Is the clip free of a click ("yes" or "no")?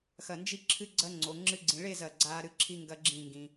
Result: no